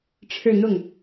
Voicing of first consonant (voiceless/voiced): voiceless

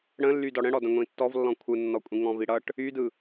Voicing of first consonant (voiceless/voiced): voiced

